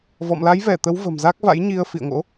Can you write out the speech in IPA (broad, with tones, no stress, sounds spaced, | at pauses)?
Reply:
v ɔ̰˧˨ m l a˨˦ j v ɛ˧˩ t̪ ə˨˦ w v ə̤˨˩ m z a˦˥ k̚ v a̰˧˥ j ɲ i˧ ə̯ f ḭ˧˨ ə̯ ŋ o̰˧˥